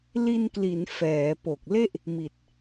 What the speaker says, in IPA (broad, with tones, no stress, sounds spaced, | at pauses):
l i˧ n k l i˩˦ n f ɛː˩˦ p o˨˩ k̚ l e˥˩ ʔ | m i˨˩ t̚